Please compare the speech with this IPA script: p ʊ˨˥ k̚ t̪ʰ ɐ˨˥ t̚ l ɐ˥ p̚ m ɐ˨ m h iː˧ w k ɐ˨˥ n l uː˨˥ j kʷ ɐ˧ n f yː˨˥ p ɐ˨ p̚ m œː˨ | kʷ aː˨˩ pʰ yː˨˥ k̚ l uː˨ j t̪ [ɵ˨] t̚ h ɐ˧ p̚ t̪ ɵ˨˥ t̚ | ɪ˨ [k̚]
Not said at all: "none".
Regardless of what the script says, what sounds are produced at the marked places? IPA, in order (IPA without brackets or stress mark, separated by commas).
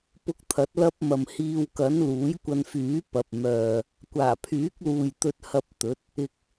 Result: ɵ˧, k̚